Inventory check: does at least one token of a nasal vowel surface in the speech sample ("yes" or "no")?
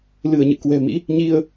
no